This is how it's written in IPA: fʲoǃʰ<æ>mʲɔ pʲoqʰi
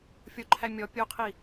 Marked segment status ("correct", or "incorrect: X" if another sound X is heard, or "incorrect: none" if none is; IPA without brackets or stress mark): correct